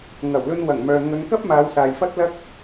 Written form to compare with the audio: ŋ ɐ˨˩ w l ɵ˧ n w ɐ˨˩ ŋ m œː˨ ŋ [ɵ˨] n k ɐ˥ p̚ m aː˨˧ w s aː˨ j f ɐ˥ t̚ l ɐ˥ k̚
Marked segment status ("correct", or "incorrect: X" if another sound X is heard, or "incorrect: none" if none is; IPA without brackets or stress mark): incorrect: ɵ˨˧